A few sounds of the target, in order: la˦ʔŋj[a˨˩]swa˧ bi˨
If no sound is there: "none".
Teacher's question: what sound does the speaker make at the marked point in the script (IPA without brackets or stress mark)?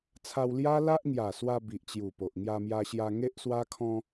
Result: a˨˩